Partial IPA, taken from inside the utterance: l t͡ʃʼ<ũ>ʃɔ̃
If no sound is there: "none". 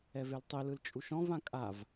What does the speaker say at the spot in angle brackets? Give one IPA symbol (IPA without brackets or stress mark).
u